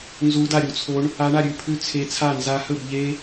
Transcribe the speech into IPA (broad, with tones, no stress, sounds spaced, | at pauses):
n z u˦˥ d a˥˧ ɾʲ u˦˥ t͡sʰ o˦˥ ɳ | a˦˥ ɳ a˥˧ ɾʲ ʉ˥˧ pʰ ʉ˥˧ t͡sʰ e˦˥ t͡sʰ a˥˧ n z a˦˥ h ɵ˥˧ b ʎ e˦˥